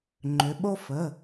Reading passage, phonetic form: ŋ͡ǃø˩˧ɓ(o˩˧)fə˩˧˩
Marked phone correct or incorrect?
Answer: incorrect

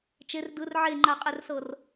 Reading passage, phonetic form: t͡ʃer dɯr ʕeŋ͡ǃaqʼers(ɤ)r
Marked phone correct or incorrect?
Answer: correct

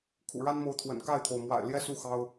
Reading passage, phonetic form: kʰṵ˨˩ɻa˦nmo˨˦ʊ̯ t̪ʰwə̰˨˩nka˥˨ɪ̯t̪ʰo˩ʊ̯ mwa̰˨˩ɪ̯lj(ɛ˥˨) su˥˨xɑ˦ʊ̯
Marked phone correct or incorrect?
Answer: correct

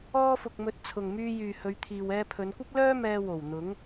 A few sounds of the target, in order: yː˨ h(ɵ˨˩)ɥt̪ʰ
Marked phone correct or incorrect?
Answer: incorrect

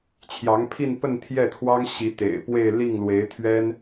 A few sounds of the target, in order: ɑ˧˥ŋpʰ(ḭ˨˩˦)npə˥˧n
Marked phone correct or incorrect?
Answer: incorrect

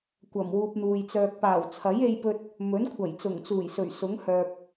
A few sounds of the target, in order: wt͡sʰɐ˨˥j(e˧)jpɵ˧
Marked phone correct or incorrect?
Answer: correct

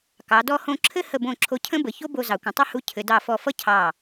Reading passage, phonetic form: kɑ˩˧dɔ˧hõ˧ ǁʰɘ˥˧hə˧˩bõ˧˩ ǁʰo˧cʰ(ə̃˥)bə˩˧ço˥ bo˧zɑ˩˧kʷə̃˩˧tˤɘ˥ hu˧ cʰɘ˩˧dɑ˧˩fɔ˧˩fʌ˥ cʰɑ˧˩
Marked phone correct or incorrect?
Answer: correct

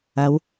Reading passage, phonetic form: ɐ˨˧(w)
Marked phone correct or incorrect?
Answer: correct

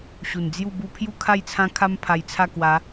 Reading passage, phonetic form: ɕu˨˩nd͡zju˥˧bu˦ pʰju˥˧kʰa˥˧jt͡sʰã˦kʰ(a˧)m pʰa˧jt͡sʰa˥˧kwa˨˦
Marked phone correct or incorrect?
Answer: incorrect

